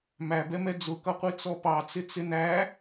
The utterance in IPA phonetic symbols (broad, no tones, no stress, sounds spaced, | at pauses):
m æ b ɛ m ɛ d͡z ʊ k ʌ qʷ i t͡s ɔ p ɑ t͡s ɪ t͡s ɪ n æ